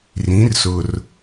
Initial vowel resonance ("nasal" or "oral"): nasal